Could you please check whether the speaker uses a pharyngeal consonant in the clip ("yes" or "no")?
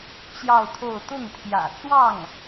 no